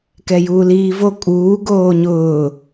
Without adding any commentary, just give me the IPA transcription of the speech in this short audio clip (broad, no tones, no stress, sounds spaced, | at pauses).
k ɛ j uː l iː v o kʼ uː ɡ oː ɲ ʊː